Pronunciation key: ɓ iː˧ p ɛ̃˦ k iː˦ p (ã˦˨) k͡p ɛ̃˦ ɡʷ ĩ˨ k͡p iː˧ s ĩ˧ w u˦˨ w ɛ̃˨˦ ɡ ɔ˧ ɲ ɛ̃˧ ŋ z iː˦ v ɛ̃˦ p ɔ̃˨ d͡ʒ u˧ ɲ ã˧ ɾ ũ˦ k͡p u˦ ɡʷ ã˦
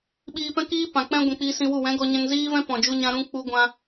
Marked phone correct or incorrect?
incorrect